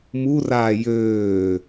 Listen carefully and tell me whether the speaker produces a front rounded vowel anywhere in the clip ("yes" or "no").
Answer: yes